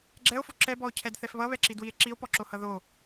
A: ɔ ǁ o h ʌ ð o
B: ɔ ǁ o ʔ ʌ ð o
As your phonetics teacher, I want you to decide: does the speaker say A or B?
A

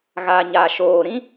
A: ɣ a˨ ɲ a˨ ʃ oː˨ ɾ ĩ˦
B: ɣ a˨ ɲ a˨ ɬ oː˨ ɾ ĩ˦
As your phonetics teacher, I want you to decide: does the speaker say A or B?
A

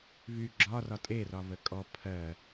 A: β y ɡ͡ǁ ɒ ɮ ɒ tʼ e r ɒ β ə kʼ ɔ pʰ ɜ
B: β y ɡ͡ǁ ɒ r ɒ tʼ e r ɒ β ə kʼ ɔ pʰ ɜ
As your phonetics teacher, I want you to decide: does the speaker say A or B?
B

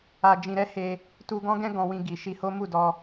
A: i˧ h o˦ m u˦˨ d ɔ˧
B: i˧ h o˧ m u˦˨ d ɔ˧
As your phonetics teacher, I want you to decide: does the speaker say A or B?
A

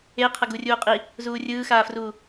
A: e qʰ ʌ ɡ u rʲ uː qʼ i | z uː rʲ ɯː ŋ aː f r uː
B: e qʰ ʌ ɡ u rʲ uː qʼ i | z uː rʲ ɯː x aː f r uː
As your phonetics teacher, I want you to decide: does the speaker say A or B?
B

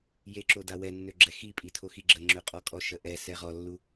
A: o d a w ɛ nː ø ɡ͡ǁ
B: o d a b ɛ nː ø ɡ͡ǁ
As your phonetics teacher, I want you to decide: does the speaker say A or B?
A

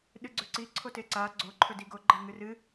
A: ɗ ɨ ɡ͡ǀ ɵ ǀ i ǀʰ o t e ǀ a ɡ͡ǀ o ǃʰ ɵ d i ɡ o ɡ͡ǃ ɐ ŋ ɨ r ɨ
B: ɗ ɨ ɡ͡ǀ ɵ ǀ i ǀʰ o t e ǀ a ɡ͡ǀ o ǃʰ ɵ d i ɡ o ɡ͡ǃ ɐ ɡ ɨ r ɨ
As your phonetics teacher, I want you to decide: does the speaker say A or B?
A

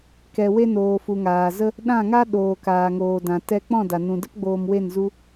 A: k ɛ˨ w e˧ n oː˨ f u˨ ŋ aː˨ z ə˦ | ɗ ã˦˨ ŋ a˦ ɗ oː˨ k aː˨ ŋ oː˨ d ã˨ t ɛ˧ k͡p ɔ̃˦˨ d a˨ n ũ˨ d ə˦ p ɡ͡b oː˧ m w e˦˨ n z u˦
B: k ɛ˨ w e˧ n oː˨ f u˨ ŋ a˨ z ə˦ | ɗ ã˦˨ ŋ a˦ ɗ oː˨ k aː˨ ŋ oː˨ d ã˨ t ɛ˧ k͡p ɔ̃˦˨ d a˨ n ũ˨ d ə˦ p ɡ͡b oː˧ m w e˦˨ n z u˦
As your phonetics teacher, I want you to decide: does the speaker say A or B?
A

